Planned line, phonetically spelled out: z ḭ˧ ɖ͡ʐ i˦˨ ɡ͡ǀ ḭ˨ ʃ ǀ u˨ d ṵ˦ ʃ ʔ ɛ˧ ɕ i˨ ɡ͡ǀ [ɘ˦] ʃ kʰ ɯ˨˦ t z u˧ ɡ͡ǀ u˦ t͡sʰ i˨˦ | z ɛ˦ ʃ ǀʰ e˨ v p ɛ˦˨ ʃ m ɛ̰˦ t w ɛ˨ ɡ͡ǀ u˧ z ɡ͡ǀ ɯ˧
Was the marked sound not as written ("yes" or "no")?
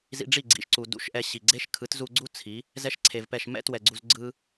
yes